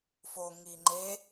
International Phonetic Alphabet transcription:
f o ŋ i ŋ͡ǃ e

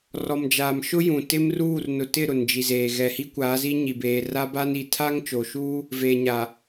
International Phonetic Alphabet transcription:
r ɔ˨ m d͡ʒ aː˨ m ʃ ʊ˦ j ũ˨ t ɪ˦ m r uː˦˨ r n ʊ˨ t ɪ˦˨ ɾ ʊ˨ n d͡ʒ i˨ z eː˨ ɣ ɛ˨ h i˦ kʷ aː˨˦ z i˦ ɲ i˨ b eː˨ r a˦ b a˦ n i˨ tʰ a˦ ŋ t͡ʃ o˨ ʃ uː˦ | v eː˨ ɲ aː˨

